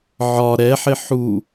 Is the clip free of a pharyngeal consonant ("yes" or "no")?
no